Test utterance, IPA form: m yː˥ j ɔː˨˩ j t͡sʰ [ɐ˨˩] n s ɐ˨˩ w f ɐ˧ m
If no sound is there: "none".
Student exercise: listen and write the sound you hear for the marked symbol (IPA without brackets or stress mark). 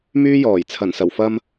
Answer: ɐ˨˩